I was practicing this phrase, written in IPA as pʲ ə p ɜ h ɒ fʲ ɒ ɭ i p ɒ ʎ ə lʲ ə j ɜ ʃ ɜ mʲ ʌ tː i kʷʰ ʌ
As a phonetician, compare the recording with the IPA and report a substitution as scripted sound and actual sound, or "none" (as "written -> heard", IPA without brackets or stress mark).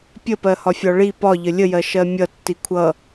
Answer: none